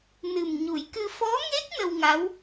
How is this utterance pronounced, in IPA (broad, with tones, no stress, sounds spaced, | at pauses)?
n ɨ˨˩ m ɲ u˨˩˦ j k ɨ˧ f ɔ˧˥ ŋ e˦˥ k̚ n ə˧ w ŋ a˧˥ w